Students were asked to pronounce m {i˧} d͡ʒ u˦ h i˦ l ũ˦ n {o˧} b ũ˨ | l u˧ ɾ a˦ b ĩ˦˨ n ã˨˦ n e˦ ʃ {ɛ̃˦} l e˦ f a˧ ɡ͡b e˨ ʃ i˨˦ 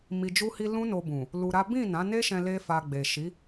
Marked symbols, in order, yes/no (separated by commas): yes, yes, no